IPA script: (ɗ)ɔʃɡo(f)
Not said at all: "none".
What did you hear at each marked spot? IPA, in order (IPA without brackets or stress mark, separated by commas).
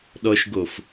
ɗ, f